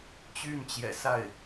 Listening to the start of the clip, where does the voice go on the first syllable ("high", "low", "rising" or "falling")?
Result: falling